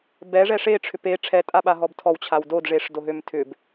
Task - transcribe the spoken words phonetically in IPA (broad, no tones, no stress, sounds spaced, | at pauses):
b ɛ ʐ ɛ ʂ e ʈ͡ʂʰ ʏ p e ʈ͡ʂʰ ɛ tʼ a ɓ a ɦ ɔ b tʰ ɔ w t͡ɕʰ a w d o d ʐ e ʂ d o ɦ ø m tʰ ʏ b